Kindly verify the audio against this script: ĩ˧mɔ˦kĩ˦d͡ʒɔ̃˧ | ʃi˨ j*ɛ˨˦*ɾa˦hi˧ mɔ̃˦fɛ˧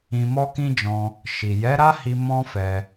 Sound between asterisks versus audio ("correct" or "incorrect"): correct